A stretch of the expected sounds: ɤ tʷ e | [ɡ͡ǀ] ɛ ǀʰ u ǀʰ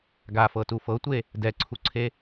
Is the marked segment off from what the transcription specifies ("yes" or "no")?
yes